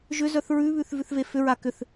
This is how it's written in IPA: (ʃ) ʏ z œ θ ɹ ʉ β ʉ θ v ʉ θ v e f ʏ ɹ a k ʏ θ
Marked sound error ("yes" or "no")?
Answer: yes